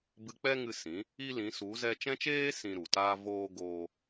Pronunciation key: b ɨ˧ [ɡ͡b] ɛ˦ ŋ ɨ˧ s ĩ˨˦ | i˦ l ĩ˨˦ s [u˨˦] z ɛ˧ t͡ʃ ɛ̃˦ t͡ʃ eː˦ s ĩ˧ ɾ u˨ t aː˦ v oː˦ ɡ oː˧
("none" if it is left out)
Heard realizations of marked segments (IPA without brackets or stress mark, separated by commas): k͡p, u˨˦